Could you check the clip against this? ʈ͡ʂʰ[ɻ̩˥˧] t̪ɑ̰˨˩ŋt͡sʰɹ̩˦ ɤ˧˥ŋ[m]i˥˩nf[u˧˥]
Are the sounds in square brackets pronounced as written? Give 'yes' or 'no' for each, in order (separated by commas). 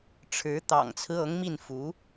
no, yes, yes